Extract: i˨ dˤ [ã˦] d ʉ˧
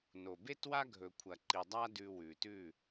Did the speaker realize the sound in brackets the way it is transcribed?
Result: no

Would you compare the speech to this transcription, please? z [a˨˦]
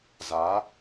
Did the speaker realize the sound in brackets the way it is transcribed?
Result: yes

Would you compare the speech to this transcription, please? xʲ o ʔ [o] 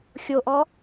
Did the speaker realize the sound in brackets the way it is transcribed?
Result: no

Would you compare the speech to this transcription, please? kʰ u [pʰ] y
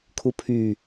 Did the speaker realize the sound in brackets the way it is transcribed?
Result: yes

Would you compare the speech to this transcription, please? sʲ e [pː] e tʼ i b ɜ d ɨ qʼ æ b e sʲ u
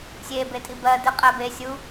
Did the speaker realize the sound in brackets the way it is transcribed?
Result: no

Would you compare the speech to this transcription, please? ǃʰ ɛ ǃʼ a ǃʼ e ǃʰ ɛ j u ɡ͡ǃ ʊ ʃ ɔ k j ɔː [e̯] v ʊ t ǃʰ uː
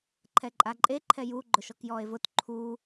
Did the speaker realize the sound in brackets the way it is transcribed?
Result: yes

